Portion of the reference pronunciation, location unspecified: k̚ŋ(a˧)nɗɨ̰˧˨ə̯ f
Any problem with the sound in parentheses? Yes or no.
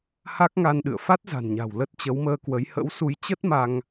no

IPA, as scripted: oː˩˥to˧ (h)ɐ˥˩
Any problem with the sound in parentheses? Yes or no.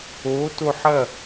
yes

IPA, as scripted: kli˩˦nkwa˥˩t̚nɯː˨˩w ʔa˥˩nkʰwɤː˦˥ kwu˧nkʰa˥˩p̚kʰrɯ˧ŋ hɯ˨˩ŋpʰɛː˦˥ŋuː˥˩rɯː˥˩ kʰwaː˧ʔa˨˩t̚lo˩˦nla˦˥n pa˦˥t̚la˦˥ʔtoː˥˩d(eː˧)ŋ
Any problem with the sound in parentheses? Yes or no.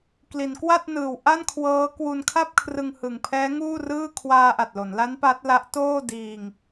yes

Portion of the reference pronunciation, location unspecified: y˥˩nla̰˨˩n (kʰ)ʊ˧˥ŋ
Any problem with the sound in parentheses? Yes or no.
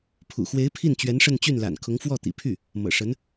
no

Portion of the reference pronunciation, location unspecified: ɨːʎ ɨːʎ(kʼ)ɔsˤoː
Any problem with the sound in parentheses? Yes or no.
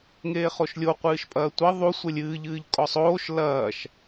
no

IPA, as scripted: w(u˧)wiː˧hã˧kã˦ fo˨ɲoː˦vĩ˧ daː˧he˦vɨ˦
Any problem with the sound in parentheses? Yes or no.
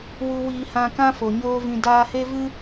no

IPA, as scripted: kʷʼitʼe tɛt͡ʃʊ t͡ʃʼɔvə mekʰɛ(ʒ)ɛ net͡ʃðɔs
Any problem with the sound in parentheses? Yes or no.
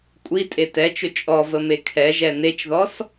no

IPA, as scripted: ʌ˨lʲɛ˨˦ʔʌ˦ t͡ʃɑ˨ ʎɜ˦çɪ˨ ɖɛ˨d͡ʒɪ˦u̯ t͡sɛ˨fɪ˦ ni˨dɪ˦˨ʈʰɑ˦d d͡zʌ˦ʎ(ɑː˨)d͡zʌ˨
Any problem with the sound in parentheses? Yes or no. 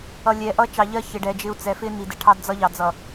yes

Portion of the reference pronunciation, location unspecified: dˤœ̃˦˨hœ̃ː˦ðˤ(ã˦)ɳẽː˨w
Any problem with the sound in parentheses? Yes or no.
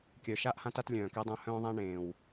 no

